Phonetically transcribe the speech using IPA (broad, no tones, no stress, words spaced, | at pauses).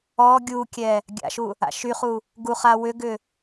ɔ ɡʲukʲɛ | ɡʲa̰ʃu | a̰ʃyχu | ɡuχa wʏɡʏ